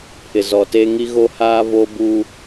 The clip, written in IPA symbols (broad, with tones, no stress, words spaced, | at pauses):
pʰɪ˨zɔ˨teː˦ ŋi˦ɣo˦haː˦ vo˦buː˦